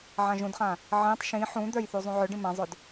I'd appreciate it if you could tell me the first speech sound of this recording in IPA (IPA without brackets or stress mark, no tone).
ʕ